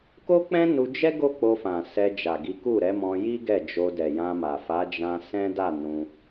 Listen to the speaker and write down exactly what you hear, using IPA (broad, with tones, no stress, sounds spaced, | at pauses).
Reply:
k o˦ k͡p ɛ̃˦ n u˧ d͡ʒ ɛ˦ ɡ o˦ k͡p o˧ f ã˨ s ɛ˧ d͡ʒ a˨ ɡ i˨˦ k u˦˨ ɾ ɛ˨˦ m ɔ̃˧ j i˦ ɡ ɛ˦˨ d͡ʒ o˧ d ɛ˨ j ã˧ m a˨ f a˨˦ d͡ʒ ã˧ s ɛ̃˦ d a˦˨ n ũ˧